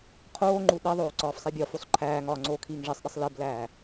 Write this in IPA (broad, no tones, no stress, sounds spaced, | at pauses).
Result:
qʰ oː ŋ͡ǃ u ɗ i ðˤ oː ǀ ɒː f sˤ i bʲ ɒ f u sˤ ǃʰ æː ŋ ɒː ŋ͡ǀ oː kʰ iː ŋ ʐ e sˤ ɗ i sˤ l e b l æː